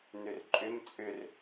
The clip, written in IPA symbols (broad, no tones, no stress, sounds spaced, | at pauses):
n ʏ r ǃʼ ʏ m t͡sʼ ʏ r